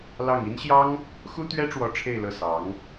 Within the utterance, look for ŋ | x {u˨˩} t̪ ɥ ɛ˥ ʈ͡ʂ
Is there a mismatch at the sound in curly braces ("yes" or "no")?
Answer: yes